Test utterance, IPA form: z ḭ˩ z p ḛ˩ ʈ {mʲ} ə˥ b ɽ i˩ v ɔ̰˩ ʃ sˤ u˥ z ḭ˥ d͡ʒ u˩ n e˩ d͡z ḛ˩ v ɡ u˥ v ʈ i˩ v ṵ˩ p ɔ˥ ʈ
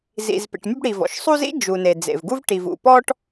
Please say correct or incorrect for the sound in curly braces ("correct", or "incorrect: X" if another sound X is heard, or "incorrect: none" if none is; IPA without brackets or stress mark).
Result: correct